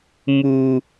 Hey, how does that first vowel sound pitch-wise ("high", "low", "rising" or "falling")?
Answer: low